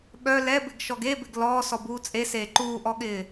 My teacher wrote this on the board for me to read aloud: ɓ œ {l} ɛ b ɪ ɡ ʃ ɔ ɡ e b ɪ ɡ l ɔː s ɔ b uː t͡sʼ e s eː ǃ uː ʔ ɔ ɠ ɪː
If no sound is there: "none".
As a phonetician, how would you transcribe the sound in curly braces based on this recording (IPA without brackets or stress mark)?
l